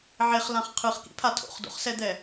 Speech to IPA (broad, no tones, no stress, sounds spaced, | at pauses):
ʕ e χ l ã χ qʰ ɯ χ k ḭ pʰ a tʰ o̰ χ d o̰ χ s ɛ d̪ ɛ